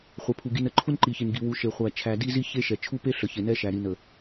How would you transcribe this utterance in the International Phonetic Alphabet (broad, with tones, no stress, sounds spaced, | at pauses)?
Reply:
χʷ ɛ˨ pʰ u˨ ɡ i˨ n ə˦ ǃʰ u˦ n ǃ i˨ ç i˨ n ɡ i˨ w u˨ ʃ e˨ χʷ æ˨ t͡ʃʰ æ˨ d i˦ z i˦ ç e˦ ʃ ɛ˨ t͡ʃʰ u˦ p e˦ ɬ ə˨ ç e˨ n ɛ˦ ʃ æ˨ ɾ i˨ n ə˨